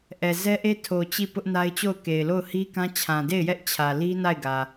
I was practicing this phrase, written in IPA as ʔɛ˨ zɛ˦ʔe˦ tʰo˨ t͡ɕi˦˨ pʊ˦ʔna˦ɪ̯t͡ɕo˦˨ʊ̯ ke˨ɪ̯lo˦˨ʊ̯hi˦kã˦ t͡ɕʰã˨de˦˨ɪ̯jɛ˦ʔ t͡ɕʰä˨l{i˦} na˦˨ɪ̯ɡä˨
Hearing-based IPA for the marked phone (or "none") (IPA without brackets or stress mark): i˦